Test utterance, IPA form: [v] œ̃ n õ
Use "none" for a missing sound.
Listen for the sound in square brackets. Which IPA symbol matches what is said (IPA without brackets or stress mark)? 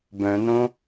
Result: b